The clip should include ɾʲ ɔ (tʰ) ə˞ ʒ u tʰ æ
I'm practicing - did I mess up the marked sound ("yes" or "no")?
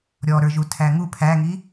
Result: yes